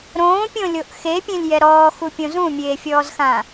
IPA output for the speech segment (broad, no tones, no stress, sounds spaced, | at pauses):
ɾ õː pʲ õ lʲ o ʔ x e pʲ ẽ lʲ j ɛ ɾ ɔː x u pʲ õ z ũ mʲ eː fʲ ɔː z x ã